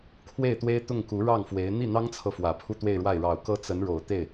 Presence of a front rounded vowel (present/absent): absent